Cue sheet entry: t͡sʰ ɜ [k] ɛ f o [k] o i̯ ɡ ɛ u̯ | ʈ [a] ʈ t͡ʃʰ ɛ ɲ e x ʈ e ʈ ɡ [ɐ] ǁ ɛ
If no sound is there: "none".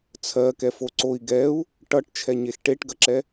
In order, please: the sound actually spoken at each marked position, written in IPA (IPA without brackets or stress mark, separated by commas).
k, ǀ, ʌ, ɐ